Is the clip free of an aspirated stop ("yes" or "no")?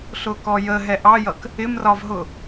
yes